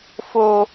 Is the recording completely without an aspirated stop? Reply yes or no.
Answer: yes